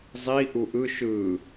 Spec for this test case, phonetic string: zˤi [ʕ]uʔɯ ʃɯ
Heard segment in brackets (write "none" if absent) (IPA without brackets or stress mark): ʔ